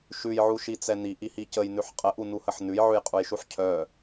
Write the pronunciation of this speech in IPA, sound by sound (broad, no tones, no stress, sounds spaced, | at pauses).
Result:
ʃ ʉ j ʕ u ʃ i t͡s ɛ n i ʔ i h i c ə j n ʉ ħ qʼ ə ʔ u n u h ə ħ n ʉ j ʕ ʉ j qʼ u j ʃ u ħ cʰ œ